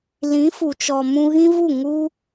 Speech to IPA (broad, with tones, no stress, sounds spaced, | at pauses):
l ĩ˨˦ f u˨ t͡ʃ ɔ˨ m ũ˧ ɣ ĩ˦ v u˦˨ ŋ u˦